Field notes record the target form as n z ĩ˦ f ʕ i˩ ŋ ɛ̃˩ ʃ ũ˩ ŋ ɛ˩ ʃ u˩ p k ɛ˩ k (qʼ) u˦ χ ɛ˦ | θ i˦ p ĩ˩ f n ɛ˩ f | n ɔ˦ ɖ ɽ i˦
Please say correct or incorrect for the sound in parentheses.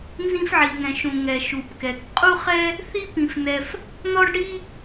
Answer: correct